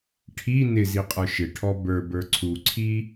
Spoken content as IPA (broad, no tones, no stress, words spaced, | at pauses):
ʈʰi nɪziqʼə˞ ʃɪ ʈʰɔbə˞ bə˞ǀʰuǀʰi